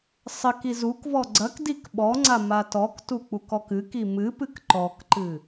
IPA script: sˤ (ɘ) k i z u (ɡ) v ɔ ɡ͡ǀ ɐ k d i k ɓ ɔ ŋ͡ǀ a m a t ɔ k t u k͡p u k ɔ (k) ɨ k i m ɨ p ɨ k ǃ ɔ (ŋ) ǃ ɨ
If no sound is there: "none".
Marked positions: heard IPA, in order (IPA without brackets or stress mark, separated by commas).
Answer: ɘ, k, k, k